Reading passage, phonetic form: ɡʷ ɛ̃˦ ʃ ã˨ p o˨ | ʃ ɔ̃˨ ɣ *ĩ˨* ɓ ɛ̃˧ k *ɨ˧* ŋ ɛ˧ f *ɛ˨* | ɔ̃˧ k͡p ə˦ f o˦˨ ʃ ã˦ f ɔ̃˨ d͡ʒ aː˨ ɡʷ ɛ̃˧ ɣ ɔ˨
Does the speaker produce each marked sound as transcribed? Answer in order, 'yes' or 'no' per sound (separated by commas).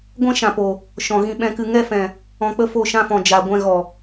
no, yes, no